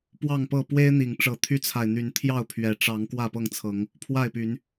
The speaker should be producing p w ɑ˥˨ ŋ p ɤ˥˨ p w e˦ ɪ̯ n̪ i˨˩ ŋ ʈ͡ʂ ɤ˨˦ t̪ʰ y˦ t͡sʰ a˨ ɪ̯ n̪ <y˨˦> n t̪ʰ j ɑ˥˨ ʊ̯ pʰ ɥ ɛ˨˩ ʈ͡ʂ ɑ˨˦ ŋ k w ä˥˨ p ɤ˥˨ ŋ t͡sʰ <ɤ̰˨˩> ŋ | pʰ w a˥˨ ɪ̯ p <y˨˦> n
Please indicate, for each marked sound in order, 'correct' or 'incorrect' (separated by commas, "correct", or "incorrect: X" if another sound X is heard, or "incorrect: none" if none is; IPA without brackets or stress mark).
correct, incorrect: ɤ˨˦, correct